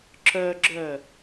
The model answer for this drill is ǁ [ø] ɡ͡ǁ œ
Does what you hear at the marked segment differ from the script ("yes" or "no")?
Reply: yes